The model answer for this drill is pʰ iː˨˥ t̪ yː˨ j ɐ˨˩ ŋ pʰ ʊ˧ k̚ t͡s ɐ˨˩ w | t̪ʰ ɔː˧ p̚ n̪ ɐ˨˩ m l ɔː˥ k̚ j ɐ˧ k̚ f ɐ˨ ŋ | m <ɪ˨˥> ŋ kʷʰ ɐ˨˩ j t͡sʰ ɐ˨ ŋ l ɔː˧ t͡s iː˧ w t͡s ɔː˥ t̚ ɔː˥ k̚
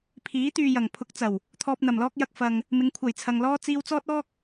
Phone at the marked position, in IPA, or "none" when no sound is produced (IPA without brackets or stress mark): ɪ˨˧